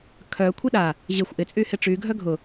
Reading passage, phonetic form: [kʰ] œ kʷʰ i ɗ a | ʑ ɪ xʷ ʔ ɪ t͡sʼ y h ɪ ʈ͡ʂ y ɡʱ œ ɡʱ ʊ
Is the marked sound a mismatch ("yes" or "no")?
no